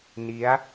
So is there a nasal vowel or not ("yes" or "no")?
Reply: no